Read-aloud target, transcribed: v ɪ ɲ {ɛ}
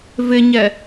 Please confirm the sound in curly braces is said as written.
yes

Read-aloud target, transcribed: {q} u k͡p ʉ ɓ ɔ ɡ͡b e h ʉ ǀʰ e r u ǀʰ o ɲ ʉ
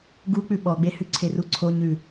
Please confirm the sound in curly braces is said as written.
no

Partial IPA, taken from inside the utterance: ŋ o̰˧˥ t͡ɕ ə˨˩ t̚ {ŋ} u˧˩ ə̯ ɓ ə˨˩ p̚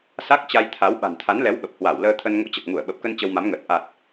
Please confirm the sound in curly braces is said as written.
yes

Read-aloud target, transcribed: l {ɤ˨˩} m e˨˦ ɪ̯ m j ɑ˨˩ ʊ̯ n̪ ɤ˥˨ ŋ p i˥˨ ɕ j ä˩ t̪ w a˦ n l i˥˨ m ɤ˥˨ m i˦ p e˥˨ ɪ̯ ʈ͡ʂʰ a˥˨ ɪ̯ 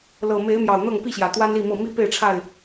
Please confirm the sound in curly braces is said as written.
yes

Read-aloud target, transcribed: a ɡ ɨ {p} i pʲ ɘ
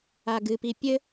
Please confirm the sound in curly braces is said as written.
yes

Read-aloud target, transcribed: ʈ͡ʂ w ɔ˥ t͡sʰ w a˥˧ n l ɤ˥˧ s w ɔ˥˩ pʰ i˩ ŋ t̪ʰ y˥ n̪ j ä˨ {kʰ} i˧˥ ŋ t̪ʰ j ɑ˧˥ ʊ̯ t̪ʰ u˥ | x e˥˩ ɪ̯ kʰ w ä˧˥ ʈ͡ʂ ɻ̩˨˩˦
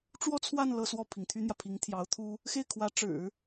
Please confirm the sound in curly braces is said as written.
no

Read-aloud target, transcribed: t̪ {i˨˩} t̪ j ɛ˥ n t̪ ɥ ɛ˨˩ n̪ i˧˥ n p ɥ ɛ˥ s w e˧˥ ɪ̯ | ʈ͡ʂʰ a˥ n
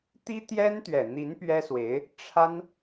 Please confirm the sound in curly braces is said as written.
no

